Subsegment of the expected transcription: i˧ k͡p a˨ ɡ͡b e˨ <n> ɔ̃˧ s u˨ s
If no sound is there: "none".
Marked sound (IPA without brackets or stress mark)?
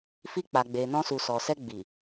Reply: n